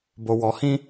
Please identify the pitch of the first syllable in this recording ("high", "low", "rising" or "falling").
low